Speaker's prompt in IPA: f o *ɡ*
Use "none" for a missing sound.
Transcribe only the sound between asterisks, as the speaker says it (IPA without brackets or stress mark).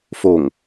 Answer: ŋ